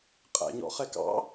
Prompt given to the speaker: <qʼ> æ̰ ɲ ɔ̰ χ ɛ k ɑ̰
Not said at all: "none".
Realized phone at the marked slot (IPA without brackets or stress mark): qʼ